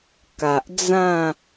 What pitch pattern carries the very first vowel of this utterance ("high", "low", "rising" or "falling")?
low